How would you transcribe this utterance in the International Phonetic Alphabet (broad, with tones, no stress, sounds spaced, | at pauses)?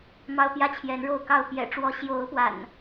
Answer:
m ɑ˦ ʊ̯ p j ä˦ t͡ɕʰ j ɛ˨˦ n ɻ o˥˨ ʊ̯ k ɑ˥˨ ʊ̯ p j ɛ̰˨˩ ʈ͡ʂ w ɔ˨˦ ɕ j o˨˦ ʊ̯ p w a̰˨˩ n